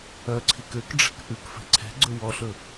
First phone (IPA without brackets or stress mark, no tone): œ